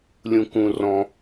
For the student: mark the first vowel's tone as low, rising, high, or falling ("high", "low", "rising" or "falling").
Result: low